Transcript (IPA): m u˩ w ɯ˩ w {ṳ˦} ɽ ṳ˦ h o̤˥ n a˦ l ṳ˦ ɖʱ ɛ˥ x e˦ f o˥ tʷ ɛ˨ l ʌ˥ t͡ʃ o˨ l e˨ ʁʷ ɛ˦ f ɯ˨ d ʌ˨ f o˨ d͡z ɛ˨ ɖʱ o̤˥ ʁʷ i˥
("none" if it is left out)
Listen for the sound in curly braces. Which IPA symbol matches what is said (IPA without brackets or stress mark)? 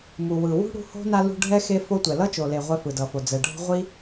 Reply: ṳ˥